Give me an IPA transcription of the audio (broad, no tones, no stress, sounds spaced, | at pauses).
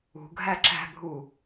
ṳ ɡʱ æ ǁ æ̤ bʱ u